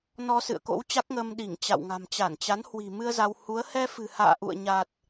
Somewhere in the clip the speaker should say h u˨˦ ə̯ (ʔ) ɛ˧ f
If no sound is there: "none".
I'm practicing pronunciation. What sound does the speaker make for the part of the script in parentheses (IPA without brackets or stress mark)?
h